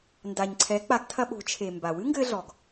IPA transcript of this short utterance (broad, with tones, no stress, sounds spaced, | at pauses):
n d a˩ ɲ ǀʰ ɛ˩˧ k͡p a˩˧ ɡ tʰ ɐ˧ ɓ o̤˩˧ t͡ʃʰ e˩ m b a˩ w ɨ˥ ŋ ɡ ɘ˧ ɮ ɔ˩ ɡ